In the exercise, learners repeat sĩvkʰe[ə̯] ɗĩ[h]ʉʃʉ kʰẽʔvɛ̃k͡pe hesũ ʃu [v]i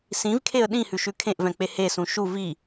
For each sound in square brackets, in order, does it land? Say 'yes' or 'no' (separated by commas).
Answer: yes, yes, yes